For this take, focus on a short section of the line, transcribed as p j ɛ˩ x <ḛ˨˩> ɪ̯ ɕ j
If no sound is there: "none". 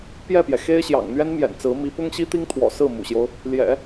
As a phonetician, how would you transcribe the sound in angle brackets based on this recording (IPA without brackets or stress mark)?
e˥